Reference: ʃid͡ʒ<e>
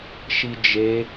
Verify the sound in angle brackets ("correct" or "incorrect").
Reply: correct